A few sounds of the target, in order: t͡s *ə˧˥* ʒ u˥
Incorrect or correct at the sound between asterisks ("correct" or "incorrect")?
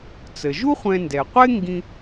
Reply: incorrect